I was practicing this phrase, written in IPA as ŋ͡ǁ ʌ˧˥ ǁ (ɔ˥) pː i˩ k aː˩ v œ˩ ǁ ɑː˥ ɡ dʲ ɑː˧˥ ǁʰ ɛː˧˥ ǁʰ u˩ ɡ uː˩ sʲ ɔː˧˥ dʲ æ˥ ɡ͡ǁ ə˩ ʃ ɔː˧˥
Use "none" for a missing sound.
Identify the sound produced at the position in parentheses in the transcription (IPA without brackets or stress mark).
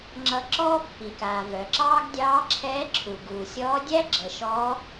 ɔː˥